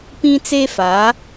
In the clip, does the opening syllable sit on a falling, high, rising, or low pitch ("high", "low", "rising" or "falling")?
high